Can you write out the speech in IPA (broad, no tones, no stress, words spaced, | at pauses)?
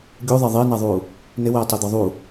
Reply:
ɡʲuðˤɛ ðˤɪːnaðˤuː | nɪwɛːtˤed̪ɔ ðˤu